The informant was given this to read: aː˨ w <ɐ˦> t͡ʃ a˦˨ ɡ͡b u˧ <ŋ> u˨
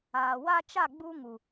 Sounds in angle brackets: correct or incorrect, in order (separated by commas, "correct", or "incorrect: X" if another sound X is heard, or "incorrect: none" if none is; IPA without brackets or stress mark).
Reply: incorrect: a˦, correct